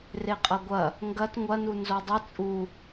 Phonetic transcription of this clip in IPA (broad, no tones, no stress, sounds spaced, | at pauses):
r e qʼ ɐ ɡʷ ɐ | ŋ ɡ ɐ t ŋʷ ɐ n u n z o dˤ ɨ t͡sʼ u